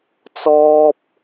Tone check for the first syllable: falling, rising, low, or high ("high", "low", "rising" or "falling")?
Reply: high